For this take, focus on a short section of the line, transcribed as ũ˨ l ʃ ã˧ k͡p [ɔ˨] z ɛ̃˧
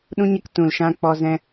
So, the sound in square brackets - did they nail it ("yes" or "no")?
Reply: no